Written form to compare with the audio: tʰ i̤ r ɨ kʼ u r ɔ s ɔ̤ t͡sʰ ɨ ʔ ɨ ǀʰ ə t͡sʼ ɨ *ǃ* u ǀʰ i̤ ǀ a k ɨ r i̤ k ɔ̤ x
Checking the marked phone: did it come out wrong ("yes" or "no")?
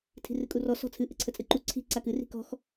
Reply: no